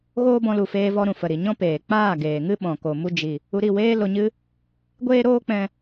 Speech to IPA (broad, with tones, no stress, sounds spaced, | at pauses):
ɣ oː˦ b ɔ̃˧ l u˨ f eː˧ v ɔ˧ ɾ ũ˨ f ə˨ ɾ i˨ ɲ ɔ̃˦ p eː˨ k͡p aː˦˨ ɡ eː˨ ŋ ɨ˦ ɓ ɔ̃˨ k o˨ m u˧ d͡ʒ i˨ | u˧ ɾ i˦˨ w eː˦ l o˧ ɲ ɨ˦ | ɡʷ eː˦ ɾ oː˦ k͡p ɛ̃˧